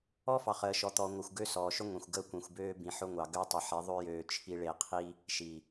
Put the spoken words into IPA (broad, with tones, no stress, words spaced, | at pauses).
ɔ˦fɑ˨χəː˨ ʃɔ˨t̪ɔː˨ŋʷəː˨xʷ ɡø˦sɔː˨ʃʏ˦ ŋʷẽ˨xʷ ɡəː˦kʷĩ˨xʷbøː˦ bĩ˨ħʊ˦ŋʷɑ˨ ɡø˦tˤe˨ħi˨˦ ðˤø˦jøː˨ t͡ʃʰi˨ɭe˨qʰi˦ | ʃi˨